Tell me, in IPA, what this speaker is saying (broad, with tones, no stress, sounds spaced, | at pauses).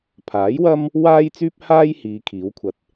pʰ aː˨˥ j w ɐ˥ m | w aː˧ j t͡s yː˧ p̚ h aː˧ j h iː˨˧ kʰ iː˨˥ w kʷʰ ɐ˧ t̚